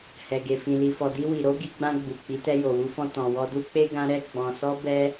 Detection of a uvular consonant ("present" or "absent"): absent